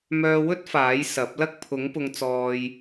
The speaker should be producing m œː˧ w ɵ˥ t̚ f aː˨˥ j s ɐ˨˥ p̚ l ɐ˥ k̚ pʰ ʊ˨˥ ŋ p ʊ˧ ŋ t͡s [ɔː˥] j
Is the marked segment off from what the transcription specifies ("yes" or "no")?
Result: yes